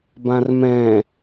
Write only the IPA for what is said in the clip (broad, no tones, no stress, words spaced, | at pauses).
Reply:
bãrmɛ̃